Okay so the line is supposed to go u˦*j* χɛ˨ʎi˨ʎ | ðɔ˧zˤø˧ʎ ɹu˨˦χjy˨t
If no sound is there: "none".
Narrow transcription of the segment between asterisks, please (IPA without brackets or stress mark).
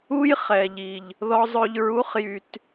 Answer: j